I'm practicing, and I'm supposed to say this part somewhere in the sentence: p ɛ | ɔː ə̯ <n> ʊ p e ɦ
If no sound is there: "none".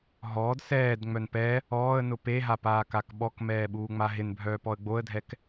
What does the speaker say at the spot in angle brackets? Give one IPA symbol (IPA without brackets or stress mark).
n